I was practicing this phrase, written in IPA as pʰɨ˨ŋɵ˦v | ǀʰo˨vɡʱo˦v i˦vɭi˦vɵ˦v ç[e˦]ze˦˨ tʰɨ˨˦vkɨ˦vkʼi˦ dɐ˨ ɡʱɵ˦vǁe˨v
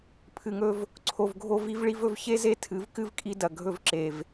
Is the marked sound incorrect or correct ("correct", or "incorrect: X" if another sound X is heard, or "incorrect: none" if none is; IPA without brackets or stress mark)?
correct